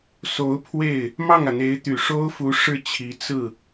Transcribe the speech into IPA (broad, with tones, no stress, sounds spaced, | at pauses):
s o˧˥ ʊ̯ pʰ w e˥˩ ɪ̯ | m ɑ˥˩ ŋ ä˩ n̪ e˧˥ ɪ̯ t̪ y˨˩ ʂ o˥ ʊ̯ f u˧˥ ʂ ɻ̩˥˩ t͡ɕʰ i˧˥ t͡s ɹ̩˥˩